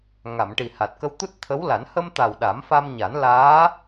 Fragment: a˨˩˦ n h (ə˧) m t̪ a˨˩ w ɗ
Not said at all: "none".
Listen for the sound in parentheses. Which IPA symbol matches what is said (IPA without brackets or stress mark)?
ə˧